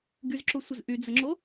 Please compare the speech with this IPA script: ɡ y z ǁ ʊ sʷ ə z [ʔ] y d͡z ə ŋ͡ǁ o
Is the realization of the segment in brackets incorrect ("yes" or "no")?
no